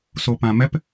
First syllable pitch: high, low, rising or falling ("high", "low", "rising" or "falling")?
low